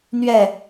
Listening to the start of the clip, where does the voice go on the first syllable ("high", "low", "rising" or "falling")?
falling